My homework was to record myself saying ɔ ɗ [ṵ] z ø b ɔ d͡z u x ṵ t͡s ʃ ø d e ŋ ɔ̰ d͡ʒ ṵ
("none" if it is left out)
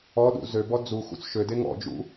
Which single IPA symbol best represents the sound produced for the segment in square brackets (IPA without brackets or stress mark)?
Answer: ṵ